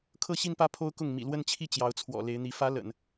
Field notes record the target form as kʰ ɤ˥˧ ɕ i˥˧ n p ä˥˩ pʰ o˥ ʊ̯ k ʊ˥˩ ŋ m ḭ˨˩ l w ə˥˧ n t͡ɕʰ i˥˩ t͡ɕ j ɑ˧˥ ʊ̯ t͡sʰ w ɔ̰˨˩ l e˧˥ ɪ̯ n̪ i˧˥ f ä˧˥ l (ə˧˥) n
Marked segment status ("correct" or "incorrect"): incorrect